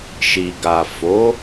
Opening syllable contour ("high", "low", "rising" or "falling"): low